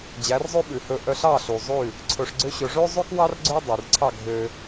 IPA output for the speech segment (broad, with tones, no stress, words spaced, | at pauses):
d͡ʑæ˩˥rzˤʉ˥ɓʉ˩hɵ˧ ʔœ˧ɬɑ˥˩ɬu˩ zˤʉ˥˩ | ǀʰɵ˧ʂɡ͡ǀø˥ɕɵ˧ ʐø˥zˤʉ˥kwɑ˥r ɡ͡ǀø˥ dˤy˩rǀʰɑ˥˩ ɡʱø˧